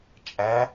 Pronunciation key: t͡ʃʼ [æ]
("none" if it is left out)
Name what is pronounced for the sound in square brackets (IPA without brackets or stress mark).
æ